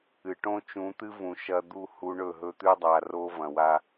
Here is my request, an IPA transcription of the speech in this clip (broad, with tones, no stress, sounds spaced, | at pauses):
ɨ˨ ʈ õ˦ t͡ʃ ũ˨˦ t̪ ɨ˦ v ũ˨ ʃ ɐ˦ d̪ u˦˨ h u˦ ɳ ɵ˦˨ ɦ ɵ˦ t̪ ʉ˦ dˤ a˨ r o˦ v ɐ̃˨ w a˦